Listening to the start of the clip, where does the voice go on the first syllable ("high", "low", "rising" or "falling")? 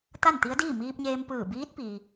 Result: falling